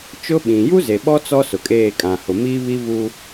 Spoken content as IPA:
t͡ʃʊ˦ɓĩ˨ ju˦ze˨ɓɔ˦ t͡sɔ˦ sʊ˨kʼeː˦˨kʼã˨hʊ˨ mi˦βi˦vu˦

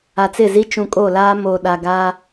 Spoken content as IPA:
a˨t͡sɪ˦˨zi˦ t͡ʃũ˨kʼo˦˨laː˦ mo˨ ɗa˨ɡaː˦

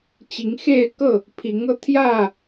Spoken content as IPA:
t͡ɕi˨˦ŋxe˥˨ɪ̯kɤ˥˨ | pʰi˨˦ŋɤ˧ t̪ʰjä˥˨

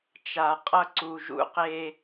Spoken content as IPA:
t͡ʃa˨qʼʌ˦ ǀu˨ʒṵ˦qe˦

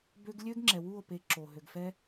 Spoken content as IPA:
bø˦ɡ lʲø˦ɡŋ͡ǁɛ˨ wu˦˨o̯pe˨˦ ǁo˨ ɦø˨ɡfɛ˦

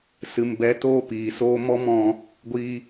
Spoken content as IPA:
sɨ˨mbɛ˨˦ toː˦piː˨soː˦ mɔ˦mɔ̃˧ | ɡʷiː˧

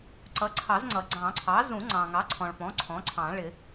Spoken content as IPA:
ǀʌ˩˥ǀʰɑ˨˩˦zŋ͡ǀʌ˩ ɡ͡ǀɑ̃˨˩˦ǀʰɑ˩˥ zũ˨˩˦ŋ͡ǀɑ̃˩ŋɑ˩˥ ǀʰɔ̃˩ɭpɔ̃˩˥ ǀʰɔ̃˩˥ǀʰɑ̃˨˩˦ ɭɪ˨˩˦

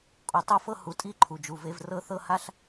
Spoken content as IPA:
kʼo˨tˤo˦fɤ˦ hu˨tʼi˦ ǃʰu˨d͡ʒu˨ve˦v rɤ˦θɤ˦ ha˦ɬ

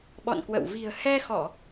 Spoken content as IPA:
ɓɔ̰˧˨nkwə̰˧˨w vi̤˨˩ə̯hɛ˧xɔ˧˩˨

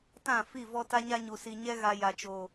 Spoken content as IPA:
tã˦˨fi˦˨ vɔ˦ta˦ɲa˦ɲu˨ si˨ɲɛ˦ɣa˨ ja˨t͡ʃo˨

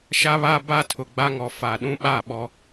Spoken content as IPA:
ʃa˦βa˦ba˦ tʰʊ˨ɡ͡ba˦ŋɔ˨ fa˨ɗũ˦ɓa˦˨ ɓɔ˦

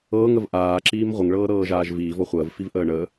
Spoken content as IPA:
ɤːŋəv ʔaːǁiːm ʁʷəŋɭɤːɾɤːʒaːʒ viːvɔ χʷəːvfivʔəː ɳə

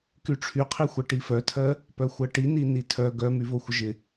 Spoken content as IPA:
kyʈ͡ʂʰyqʰixʷɜ ʈifœtʰɜ | pœxʷɜʈini nitʰœ ɡœmyvo xʷəʒɪ

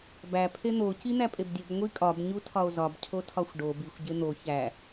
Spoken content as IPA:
bæ pʰen̪o cin̪æpʼebdʲob ŋʷikʼɒb ɲutʰɒo̯zɒb cʰotʰɒxʷɖo bixʷ ɟen̪o çæ

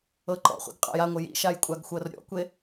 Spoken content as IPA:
ɤǃɔ̰χʷḭɡ qʼa̰jaŋʷɘ jḭʃaj kʷʼaɡxʷɤrɾʲɔ̰kʷe

